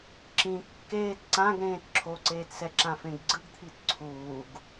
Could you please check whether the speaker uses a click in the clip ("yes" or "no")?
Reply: yes